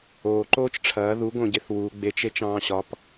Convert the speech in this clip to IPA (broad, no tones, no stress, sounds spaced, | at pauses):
oː ǃ oː t͡ʃ ʈ͡ʂʰ ɐː ð u ɡ õ ɟ e θ w u ɡ͡b e t͡ʃ e t͡ʃ ɑ̃ː ɕ ɒ p